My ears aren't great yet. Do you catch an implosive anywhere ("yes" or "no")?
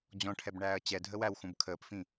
no